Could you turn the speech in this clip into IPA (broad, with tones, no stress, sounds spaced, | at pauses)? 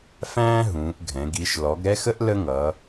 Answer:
f æ̃ː˦ ɦ ũː˩˧ ʔ ɡʱ ɛ̃˩˧ ɡ i˩˧ ʃ l ɔ˩˧ ɡ ɾ ɛ˦ x ə˦ ʔ l ə˦ ŋ ʌː˩˧